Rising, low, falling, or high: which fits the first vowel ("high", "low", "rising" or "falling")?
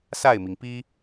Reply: falling